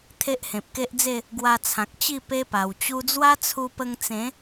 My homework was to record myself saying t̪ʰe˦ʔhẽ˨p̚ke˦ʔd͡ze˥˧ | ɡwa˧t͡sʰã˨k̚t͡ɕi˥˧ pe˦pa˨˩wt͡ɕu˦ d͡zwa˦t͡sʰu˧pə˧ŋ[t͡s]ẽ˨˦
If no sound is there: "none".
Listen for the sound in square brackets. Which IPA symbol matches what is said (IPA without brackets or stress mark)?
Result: t͡s